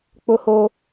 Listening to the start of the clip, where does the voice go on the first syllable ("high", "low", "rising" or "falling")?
high